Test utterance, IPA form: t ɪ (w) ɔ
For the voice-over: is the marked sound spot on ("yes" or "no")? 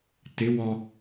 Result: yes